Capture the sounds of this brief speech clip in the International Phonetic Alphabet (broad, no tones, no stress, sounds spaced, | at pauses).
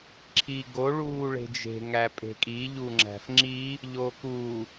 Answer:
ǁʰ iː ɡ o ɭ uː ɭ e̤ d͡ʒ e̤ ŋ æ pʼ e̤ kʼ i ʎ u ŋ͡ǁ æ̤ f ŋ͡ǁ i | ʎ oː k u